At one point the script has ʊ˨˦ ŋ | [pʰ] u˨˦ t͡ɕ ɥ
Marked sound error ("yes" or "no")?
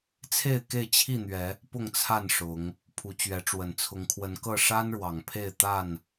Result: no